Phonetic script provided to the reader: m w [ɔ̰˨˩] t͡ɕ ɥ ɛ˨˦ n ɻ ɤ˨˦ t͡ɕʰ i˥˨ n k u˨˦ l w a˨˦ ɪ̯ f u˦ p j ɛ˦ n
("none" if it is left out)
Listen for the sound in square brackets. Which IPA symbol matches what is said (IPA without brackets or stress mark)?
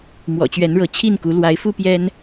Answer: ɔ̰˨˩